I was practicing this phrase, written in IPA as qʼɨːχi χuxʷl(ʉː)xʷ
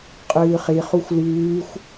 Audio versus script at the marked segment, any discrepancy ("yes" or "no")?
no